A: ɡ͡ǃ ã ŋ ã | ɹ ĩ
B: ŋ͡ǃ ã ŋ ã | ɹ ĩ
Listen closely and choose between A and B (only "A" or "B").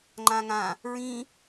B